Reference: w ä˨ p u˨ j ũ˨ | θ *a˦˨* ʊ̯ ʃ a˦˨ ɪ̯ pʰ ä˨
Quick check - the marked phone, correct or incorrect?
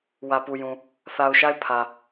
incorrect